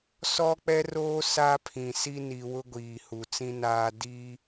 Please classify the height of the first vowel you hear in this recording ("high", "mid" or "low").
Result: mid